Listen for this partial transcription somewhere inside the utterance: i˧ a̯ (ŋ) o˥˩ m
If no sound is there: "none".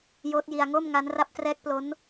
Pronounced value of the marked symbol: ŋ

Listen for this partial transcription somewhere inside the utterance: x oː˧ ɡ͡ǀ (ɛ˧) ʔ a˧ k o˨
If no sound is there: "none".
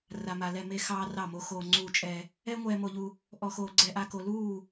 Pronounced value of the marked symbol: ɛ˧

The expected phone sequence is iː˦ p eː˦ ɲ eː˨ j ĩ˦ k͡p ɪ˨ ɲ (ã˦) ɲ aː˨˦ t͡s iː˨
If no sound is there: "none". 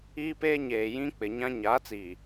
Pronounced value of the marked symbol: ã˦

